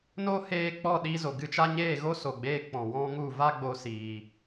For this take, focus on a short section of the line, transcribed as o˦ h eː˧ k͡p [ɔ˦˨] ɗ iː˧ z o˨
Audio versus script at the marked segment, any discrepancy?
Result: no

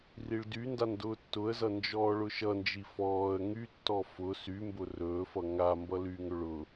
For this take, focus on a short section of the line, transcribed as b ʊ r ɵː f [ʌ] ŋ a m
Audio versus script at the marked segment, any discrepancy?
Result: no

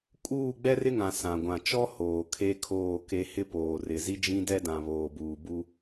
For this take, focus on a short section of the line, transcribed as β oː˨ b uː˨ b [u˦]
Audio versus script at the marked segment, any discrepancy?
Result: no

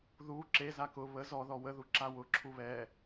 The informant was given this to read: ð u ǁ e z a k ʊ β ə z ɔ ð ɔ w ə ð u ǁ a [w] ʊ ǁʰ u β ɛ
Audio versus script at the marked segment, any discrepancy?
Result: no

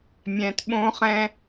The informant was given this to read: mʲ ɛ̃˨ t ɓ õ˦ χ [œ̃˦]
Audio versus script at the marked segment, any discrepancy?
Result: yes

